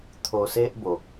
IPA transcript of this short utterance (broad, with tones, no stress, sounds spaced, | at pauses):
t̪ʰ o˧ s e˦ ʔ b o˨ k̚